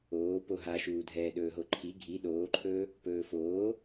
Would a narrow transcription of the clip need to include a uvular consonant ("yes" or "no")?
no